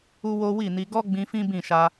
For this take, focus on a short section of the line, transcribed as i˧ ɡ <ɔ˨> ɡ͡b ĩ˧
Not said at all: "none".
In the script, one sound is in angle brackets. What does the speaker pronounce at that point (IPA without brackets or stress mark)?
ɔ˦